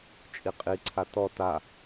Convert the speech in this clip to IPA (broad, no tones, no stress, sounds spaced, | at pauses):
t͡ʃʼ i qʼ i ǀʰ a t ɔ t a